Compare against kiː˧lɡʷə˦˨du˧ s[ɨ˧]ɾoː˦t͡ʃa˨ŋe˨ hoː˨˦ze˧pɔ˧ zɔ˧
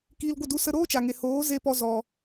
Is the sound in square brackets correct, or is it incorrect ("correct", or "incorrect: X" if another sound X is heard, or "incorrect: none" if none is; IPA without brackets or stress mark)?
incorrect: ə˧